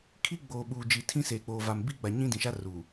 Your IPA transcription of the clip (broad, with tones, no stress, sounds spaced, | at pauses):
kʰ i˦ ɡ͡b oː˨ ɓ uː˨ d͡ʒ i˨ tʰ ĩ˦ s eː˨ k͡p oː˨ v a˨ m b i˦ ɡ͡b a˨ ɲ ĩ˦ d ĩ˨ ʃ a˦ r uː˨